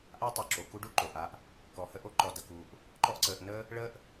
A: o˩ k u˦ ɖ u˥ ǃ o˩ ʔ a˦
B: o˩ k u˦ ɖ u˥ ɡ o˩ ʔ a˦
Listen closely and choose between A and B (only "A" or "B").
A